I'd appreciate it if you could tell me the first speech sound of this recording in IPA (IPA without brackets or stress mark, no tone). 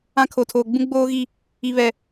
ã